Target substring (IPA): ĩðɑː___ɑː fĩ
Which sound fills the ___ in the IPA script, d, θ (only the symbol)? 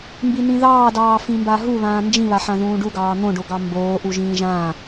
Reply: d